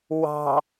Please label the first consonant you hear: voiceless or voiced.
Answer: voiced